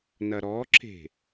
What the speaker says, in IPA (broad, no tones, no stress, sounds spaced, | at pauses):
n ɐ ɾ ɔ ǁ e̤